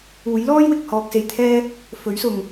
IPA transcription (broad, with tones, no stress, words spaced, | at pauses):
uː˨˥jlɔː˥jwɪ˨k̚ hɔː˧k̚se˧jt̪ʰɛː˥ | fɵ˨˥ɥsʊ˨ŋ